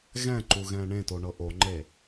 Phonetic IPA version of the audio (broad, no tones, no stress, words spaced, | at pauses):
ɣɛ̃ǃu ɣɛ̃ːɳẽto ɳɤʔoŋ͡ǃe